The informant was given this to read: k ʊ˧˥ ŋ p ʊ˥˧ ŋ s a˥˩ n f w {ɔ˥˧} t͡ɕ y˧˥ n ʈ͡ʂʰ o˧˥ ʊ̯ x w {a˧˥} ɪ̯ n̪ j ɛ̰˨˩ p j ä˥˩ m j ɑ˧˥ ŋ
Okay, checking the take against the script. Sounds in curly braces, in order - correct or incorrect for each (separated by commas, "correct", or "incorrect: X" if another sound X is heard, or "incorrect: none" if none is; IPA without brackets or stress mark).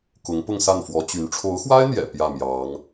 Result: incorrect: ɔ˧˥, incorrect: a˥